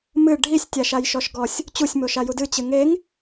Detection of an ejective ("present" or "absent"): absent